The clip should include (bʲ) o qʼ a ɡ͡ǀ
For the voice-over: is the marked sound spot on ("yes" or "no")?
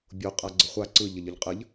yes